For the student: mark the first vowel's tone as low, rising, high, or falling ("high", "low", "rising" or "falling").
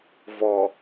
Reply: low